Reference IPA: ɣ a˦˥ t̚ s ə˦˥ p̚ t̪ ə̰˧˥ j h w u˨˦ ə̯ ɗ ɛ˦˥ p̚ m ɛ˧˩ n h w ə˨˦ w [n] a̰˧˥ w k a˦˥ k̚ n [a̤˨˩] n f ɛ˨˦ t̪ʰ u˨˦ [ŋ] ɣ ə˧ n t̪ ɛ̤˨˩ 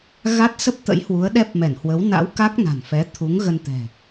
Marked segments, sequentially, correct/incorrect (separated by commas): correct, correct, correct